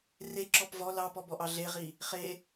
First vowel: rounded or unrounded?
unrounded